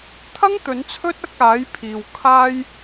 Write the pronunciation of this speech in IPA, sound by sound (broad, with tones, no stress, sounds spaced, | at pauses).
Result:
t̪ʰ ɐ˥ ŋ t̪ ɵ˨˥ n t͡sʰ ɵ˥ t̚ ɐ˧ k̚ aː˨˥ j pʰ iː˨ w kʰ aː˧ j